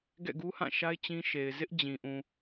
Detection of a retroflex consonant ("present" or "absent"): absent